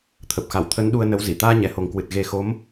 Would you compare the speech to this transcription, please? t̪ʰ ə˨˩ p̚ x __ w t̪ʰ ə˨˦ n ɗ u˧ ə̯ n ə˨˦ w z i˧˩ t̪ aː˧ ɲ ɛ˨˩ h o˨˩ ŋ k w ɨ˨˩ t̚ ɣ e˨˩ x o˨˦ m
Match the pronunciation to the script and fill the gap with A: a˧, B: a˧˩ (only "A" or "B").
B